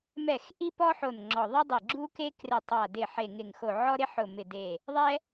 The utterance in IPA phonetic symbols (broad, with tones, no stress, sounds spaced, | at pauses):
m ɛ˧˩ x ʔ i˥ p ɔ˥ ħ o˧˩ n ŋ͡ǁ ɔ˧˩ ðˤ ɛ˥ dˤ i˧˩ ɡ͡ǁ u˥ k e˥ k r ɪ˧˩ tˤ a˧˩ d ɪ˧˩ ħ e˧˩ ŋ ɪ˧˩ ŋ x o˧˩ ʕ ɔ˥ ɾ ɪ˥ ħ ʊ˧˩ m ɪ˧˩ d e˧˩ | ðˤ ɛ˥